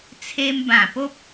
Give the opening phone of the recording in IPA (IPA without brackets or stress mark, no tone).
t͡sʰ